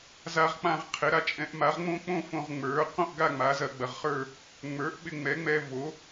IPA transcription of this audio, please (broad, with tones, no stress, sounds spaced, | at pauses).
z a˧ ʁ k͡p ã˧ ʁ qʰ ɪ˩˥ ɾ a˧ t͡ʃʼ ɛ̃˩˥ ʔ m a˩˥ ʁ ŋ͡m õ˥˧ k͡p õ˥˧ f õ˧ ʁ ŋ͡m ə˞˩˥ q õ˥˧ ʔ ɡ a˥˧ ŋ͡m a˩˥ z ɐ˧ ɡ͡b ɐ˧ ʁ χ ə˞˥˧ | ŋ͡m ə˞˩˥ ʔ ɓ ɪ˧ ŋ͡m ɛ˩˥ ŋ͡m ɛ˧ v o˩˥